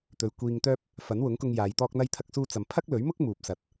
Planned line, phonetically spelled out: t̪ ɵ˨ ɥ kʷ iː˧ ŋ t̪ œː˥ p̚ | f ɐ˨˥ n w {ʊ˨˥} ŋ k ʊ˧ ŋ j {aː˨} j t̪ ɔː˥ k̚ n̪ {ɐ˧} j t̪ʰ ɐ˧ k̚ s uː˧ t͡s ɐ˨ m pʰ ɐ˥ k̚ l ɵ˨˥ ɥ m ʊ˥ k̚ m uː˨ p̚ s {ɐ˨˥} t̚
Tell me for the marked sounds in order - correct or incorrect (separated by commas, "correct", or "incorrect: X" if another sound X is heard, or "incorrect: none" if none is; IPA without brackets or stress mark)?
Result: correct, incorrect: aː˨˧, correct, incorrect: ɐ˨